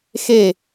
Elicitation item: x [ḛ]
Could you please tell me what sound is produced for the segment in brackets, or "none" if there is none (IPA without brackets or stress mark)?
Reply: e